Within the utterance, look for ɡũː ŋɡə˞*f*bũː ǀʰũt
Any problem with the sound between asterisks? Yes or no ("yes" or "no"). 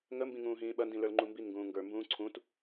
yes